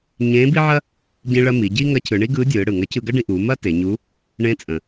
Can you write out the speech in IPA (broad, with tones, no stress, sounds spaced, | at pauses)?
ɲ ẽː˧˥ b i˥ ʕ ɐ˥ | ɟ ĩ˧ ɭ ɐ˧ m i˩˧ ɟ i˥ ŋ ɐ˧˥ cʰ ɯ˩˧ ɳ i˥ ɡ ɯː˧˥ dʲ ɯː˩˧ ɽ ɯ˩ ŋ ɐ˧˥ cʰ ɯ˧ ɡ ɐ˥ ɖ ĩ˧ ʔ uː˩˧ m ɐ˥ t e˩˧ ɲ u˧˥ | ɳ ẽ˧˥ t͡sʼ ə̃˩